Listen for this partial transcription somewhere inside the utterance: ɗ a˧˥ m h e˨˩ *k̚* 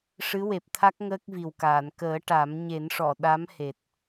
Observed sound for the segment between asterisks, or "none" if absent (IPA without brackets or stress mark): t̚